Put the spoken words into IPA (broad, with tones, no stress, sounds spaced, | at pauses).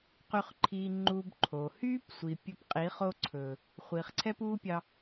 q y˧ χ ǃʰ iː˧ ŋ͡ǃ uː˧ b ǃʰ oː˨ h yː˦ p sʷ i˨ pʲ ɵ˧ p qʼ i˨˦ χ o˧ ǀʰ ɵː˨ | χʷ iː˨ χ ǀʰ ɛ˦ p uː˦ pʲ ɑ˧